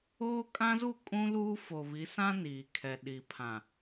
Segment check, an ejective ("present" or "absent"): present